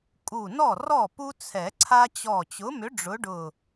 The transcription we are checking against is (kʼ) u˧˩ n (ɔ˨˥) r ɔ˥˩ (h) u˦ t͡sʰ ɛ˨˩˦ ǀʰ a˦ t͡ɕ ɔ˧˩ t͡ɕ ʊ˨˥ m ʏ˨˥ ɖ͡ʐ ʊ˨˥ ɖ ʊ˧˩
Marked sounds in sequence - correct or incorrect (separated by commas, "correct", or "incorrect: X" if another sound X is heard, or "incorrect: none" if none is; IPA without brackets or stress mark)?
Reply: correct, incorrect: ɔ˥˩, incorrect: p